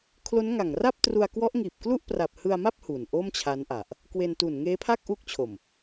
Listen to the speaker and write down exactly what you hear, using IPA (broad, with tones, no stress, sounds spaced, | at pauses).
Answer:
kʰ l o˦˥ n ŋ a˨˩ ŋ r a˥˩ p̚ t r u˧ a̯ k w ɔ˦˥ ʔ ŋ iː˨˩ p̚ k l u˥˩ ʔ p r a˨˩ p̚ h ɯ˧ a̯ m a˥˩ p̚ h u˨˩ n ʔ o˥˩ m t͡ɕʰ a˦˥ n ʔ a˨˩ ʔ | k w e˧ n t u˨˩ n ŋ eː˦˥ pʰ a˥˩ k̚ ʔ u˦˥ k̚ t͡ɕʰ o˨˩ m